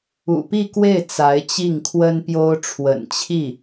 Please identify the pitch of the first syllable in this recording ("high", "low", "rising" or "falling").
low